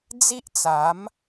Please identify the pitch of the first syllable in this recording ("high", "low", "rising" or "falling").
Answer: high